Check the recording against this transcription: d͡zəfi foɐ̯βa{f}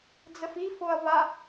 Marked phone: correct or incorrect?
incorrect